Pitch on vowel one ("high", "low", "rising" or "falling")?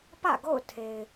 falling